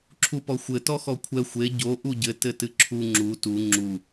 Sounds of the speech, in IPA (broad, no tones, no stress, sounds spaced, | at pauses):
ǁʰ u p ɔ xʷ ɘ t ɔ x ɔ kʷʰ ɛ xʷ e ɟ o ʔ u ɟ ɘ t ɘ t ɨ ǁʰ u ŋ͡ǁ u t u ŋ͡ǁ u